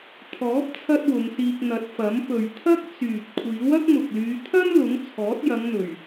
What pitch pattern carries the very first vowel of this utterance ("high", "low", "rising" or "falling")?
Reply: rising